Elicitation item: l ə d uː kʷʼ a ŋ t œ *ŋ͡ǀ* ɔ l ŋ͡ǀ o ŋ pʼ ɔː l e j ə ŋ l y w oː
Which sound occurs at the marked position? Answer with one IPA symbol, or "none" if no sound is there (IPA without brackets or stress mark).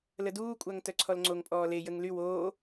ǀʰ